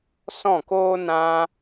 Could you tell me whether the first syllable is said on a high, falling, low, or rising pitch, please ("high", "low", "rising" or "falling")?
falling